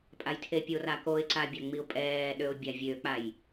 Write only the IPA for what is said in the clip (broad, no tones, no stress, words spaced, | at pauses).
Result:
pʼajtʰepʲor akoɪ̯ǀabʲa ŋ͡miʊ̯pʼɛːɗøʊ̯ bʲavʲøk͡paj